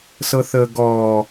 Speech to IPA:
s ɤ θ əː ɡ ɔː

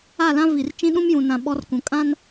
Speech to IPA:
a˦˨ l ã˦ v i˨ r t͡ʃ ĩ˦ ɗ ũ˦ m j ũ˨ n ã˨ ɓ ɔ˦ r k ũ˨ kʼ ã˦ n

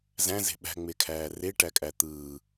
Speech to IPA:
z æ̃ z e̤ ɓ æ̤ ŋ͡m e kʰ æː r e ʈ æ kʼ æ t̪ ɯː

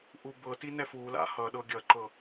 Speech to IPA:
ʔ u b ɤ t i n ɛ f u l a̰ h ʌ ɗ ɤ ɡʲ ʌ ǃ ɤ

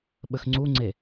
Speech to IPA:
ɓ ə x ŋ͡ǀ u ŋ͡ǀ e

